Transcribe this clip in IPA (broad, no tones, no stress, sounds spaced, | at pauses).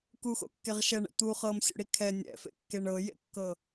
k u x o̰ kː e ʁ ʃ ɛ ɳ ɛ̰ t̪ u χ ɤ m sʲ o̰ ɽ i kʰ ɛ nʲ ɛ̰ f ḛ kː e ɳ ɤ j ḛ kː ɤ